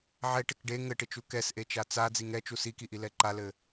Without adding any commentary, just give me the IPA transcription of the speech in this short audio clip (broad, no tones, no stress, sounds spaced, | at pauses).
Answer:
ʕ ɛ ʈ ɪ k ɖ e ŋ ɘ ʈ ɪ t͡ʃ u k ɛ s ʔ e t͡ʃ a t͡s a d͡z i ŋ ɛ t͡ʃ u s i k i ʔ i l ɛ ǃ a l ɘ